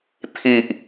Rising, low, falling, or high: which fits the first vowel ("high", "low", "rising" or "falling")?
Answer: low